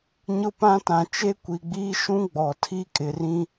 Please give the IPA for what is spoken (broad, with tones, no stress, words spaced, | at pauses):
ɲʊ˦pã˦tã˨ t͡ʃe˦kʷi˨ɡ͡biː˦ ʃũ˦ ɡ͡bɔ˨ tʰi˦kʼɪ˨rĩ˦